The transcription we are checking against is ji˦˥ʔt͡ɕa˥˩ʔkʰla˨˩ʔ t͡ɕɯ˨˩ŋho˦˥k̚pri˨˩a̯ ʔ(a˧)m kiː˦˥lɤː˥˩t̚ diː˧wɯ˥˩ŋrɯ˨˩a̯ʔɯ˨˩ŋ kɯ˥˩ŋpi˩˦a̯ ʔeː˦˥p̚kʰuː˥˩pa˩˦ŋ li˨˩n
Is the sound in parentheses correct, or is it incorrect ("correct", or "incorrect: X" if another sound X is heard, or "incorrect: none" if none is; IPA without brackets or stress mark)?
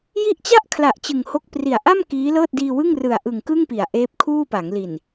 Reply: incorrect: a˥˩